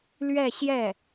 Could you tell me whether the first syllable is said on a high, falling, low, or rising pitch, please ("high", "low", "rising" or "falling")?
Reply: falling